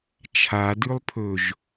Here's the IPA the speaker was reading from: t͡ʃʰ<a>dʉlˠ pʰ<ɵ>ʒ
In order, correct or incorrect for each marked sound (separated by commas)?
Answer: correct, correct